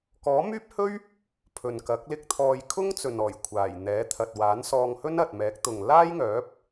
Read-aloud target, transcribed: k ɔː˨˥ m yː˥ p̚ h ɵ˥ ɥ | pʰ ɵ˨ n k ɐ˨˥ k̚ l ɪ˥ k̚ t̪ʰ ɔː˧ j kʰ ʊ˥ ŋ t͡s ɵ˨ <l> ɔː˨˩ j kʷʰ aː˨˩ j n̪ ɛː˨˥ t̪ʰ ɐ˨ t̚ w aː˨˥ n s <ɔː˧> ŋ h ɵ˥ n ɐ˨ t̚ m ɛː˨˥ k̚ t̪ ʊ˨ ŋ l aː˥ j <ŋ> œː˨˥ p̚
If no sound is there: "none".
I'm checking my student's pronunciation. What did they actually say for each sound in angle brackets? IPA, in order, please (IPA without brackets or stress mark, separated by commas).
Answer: n, ɔː˧, ŋ